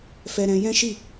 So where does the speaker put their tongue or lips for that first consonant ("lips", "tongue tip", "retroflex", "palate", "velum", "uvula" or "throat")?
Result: lips